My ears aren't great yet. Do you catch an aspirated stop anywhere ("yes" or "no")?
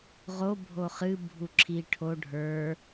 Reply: yes